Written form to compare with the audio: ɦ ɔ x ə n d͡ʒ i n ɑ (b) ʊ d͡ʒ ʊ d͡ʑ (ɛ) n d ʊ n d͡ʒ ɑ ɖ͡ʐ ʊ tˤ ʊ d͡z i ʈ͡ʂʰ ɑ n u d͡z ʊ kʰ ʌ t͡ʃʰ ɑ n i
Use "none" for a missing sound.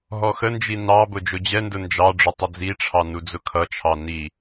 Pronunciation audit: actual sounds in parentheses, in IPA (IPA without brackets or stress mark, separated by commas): b, ɛ